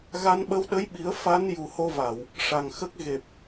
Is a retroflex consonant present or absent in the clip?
present